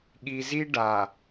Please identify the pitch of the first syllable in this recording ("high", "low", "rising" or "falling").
low